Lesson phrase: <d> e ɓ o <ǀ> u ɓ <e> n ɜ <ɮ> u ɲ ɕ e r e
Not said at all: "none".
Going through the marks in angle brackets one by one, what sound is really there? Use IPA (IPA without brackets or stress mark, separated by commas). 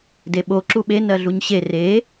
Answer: d, ǁ, e, ɮ